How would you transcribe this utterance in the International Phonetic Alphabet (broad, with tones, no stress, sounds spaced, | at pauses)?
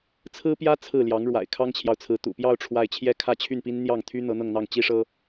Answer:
t͡sʰ ɹ̩˥ p j ä˥ t͡sʰ ɹ̩˥˩ l j ɑ˧˥ ŋ ɻ w a̰˨˩ ɪ̯ kʰ ɑ˥ ŋ t͡ɕʰ j ɑ˨ ʊ̯ t͡sʰ ɹ̩˧˥ t̪ ṵ˨˩ p j ɑ˥˧ ʊ̯ ʈ͡ʂʰ w a˥˩ ɪ̯ t͡ɕʰ j ɛ˥ kʰ ä˥˧ t͡ɕʰ y˥˩ n p i˥ n n̪ j ɑ˥˩ ŋ t̪ʰ y˥ n̪ ɤ˧˥ n̪ ɤ˥˧ ŋ n̪ ɑ˥˩ ŋ t͡ɕ i˥ ʂ ɤ˥